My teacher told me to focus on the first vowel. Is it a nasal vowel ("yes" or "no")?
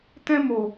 yes